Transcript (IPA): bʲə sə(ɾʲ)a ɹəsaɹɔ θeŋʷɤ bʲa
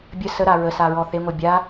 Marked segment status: incorrect: ɾ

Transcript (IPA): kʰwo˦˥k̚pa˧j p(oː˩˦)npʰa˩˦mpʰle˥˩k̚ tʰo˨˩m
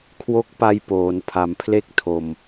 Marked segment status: correct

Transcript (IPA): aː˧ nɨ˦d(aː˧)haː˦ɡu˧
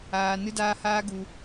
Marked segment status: incorrect: aː˦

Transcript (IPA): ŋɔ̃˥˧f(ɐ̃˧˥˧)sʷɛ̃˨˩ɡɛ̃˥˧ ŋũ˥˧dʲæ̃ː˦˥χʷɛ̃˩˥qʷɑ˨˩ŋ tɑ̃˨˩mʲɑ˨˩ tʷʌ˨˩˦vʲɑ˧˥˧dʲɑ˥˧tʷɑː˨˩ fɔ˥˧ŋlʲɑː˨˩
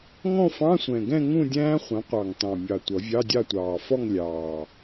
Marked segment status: incorrect: ɑ̃˧˥˧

